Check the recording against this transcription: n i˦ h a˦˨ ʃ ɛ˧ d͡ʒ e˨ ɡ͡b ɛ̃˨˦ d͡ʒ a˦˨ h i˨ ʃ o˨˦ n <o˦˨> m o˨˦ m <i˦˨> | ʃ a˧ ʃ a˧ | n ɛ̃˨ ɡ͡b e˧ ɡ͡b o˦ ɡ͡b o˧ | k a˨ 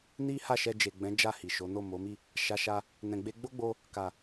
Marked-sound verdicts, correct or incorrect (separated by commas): correct, correct